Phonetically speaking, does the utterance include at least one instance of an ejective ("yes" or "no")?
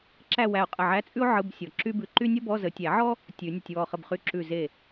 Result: yes